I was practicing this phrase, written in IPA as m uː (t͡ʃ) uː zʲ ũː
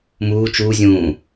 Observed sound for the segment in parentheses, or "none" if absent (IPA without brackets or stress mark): t͡ʃ